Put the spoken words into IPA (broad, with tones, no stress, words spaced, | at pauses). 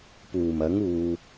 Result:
puː˨˩mɐ˨˥ŋ uː˨